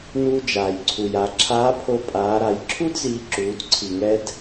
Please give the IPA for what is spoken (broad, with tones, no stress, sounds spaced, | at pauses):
n uː˧ d͡ʒ aː˩ j ǀʰ u˩ j a˩˧ ǁʰ aː˧˥ pʰ o˧ pʼ aː˩˧ ɾ a˩˧ j ǁʰ u˥ d z iː˧ ǁ uː˩˧ d ǀʰ i˩ ŋ ɛ˧ d